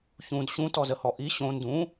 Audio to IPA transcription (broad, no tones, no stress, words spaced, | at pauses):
çũd ɕũtɔzəhɔ ʔi ɕõ ndũ